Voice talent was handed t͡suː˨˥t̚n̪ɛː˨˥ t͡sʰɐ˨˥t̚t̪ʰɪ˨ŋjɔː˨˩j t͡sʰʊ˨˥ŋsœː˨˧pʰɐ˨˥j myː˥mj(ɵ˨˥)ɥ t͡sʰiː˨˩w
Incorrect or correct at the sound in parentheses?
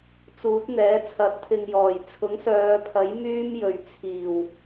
incorrect: ɵ˨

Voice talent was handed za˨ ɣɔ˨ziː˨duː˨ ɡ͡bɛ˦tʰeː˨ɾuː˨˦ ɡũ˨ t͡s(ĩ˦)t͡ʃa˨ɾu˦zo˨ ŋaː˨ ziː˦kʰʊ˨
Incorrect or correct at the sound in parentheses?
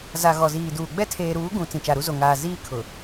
incorrect: ĩ˨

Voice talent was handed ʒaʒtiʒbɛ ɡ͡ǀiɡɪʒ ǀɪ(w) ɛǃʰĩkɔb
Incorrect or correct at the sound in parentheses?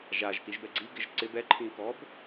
incorrect: b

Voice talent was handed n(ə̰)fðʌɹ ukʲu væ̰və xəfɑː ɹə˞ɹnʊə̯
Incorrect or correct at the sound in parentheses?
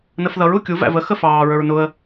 incorrect: ə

